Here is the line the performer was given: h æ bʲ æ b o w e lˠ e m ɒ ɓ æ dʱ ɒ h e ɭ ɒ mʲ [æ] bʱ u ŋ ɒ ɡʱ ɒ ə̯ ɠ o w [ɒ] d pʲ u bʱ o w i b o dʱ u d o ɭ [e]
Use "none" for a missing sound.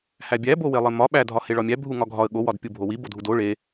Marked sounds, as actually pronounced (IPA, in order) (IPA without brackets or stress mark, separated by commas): æ, ɒ, e